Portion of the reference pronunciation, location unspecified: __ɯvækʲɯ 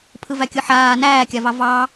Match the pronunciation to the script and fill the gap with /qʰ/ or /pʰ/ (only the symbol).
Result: pʰ